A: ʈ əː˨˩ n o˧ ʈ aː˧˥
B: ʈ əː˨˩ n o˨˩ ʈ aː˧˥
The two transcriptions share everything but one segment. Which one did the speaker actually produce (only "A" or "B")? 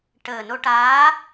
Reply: A